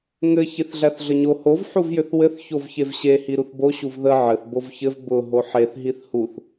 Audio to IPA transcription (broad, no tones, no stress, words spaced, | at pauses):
ŋɘ çiθɮæθɮəɲo hov ħuvjʏθwɘθ çovçevɕe hiɾuθbo ɕuvðə ʕɘθ bovçɘv bʊ ɦoħeθ ɦiθhuθ